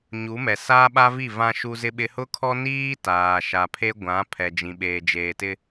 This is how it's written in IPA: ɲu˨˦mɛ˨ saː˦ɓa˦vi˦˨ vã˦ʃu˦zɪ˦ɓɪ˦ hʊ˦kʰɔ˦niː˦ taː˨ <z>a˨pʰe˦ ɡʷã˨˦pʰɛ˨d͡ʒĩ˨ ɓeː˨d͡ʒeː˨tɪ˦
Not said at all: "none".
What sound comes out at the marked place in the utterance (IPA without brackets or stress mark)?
ʃ